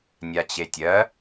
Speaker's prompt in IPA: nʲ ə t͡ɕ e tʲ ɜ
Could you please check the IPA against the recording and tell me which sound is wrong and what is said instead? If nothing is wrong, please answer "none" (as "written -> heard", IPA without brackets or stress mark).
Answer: ə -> a